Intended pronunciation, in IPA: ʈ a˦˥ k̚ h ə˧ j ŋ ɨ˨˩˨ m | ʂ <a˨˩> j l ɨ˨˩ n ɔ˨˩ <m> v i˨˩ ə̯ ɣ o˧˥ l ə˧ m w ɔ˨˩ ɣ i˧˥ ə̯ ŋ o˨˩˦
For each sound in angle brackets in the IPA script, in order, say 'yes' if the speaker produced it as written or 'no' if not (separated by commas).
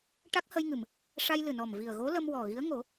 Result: no, yes